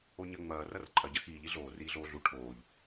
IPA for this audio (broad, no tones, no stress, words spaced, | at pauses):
oɲɐ ŋ͡mɐː rɐrǃʼɐ ɟɐxiːʎ iɮoː riːɮoːɮu ʈʰoːʎ